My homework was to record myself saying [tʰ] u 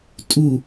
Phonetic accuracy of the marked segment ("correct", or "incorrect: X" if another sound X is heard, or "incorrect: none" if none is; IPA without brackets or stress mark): incorrect: tʼ